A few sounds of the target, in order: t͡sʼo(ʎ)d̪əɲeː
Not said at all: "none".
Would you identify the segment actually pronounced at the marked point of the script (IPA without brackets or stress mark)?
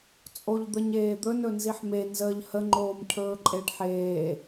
ʎ